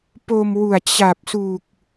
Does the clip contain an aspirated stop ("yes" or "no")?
no